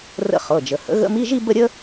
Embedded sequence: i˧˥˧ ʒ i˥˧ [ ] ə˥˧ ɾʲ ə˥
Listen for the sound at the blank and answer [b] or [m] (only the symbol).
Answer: b